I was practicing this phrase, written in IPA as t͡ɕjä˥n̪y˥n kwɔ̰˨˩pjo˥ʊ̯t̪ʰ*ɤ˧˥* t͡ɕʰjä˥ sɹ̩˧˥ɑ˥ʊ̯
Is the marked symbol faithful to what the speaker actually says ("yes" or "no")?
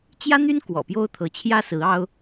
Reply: yes